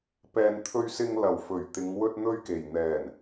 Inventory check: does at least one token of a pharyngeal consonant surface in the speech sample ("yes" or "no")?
no